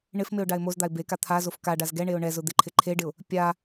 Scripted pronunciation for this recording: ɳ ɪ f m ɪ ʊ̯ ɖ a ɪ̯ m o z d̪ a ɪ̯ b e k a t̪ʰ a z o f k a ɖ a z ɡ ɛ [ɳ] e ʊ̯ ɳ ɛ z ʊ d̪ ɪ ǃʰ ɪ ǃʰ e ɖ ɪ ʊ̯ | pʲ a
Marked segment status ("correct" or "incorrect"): correct